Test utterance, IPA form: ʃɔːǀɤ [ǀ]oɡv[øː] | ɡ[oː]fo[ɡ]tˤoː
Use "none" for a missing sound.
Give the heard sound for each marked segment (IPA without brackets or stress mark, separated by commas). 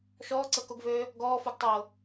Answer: k, øː, ɔː, ɡ